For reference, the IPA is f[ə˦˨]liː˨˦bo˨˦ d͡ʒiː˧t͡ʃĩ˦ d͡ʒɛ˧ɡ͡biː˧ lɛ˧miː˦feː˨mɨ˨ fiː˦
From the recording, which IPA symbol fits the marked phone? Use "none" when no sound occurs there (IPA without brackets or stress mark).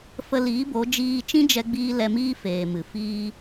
ə˧